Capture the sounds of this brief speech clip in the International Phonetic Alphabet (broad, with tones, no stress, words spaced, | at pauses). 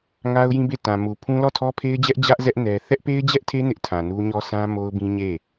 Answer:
ŋa˦ʊ̯jĩ˦be˦˨ tã˨ mu˨ pʰũ˦ lɔ˦˨tʰɔ˦pʰe˦ɪ̯d͡ʑɛ˦ʔ d͡ʑä˦ʔzɛ˦ʔ nɛ˦ θɛ˦ʔpe˦ɪ̯d͡ʑɛ˦ʔtʰe˦ nɪ˦ʔtʰã˨nu˦ɲɔ˦ sʰã˦mo˦ʊ̯bĩ˦ɲe˦˨